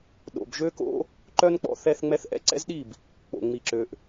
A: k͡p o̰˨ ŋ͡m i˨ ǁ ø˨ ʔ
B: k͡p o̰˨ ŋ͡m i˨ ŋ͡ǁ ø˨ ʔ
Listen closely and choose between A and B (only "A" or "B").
A